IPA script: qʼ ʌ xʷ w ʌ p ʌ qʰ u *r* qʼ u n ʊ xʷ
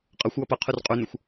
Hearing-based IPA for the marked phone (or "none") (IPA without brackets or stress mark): r